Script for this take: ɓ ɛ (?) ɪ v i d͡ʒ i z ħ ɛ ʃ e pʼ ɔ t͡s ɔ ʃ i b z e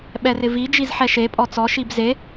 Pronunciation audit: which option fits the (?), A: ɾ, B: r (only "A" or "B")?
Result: B